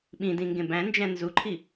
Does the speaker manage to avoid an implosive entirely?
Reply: no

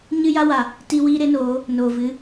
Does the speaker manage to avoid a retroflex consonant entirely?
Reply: yes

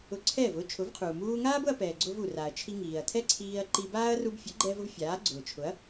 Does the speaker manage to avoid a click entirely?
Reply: no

